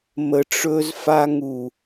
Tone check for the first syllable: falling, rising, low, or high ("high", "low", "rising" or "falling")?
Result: low